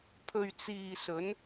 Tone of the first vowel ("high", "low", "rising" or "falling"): low